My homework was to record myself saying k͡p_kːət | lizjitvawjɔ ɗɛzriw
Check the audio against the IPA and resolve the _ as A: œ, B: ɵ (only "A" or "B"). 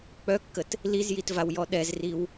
A